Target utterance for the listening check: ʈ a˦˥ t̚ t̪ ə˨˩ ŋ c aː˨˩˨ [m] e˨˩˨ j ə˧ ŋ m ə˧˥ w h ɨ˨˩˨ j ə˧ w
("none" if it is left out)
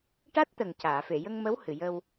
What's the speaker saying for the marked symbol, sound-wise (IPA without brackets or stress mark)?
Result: f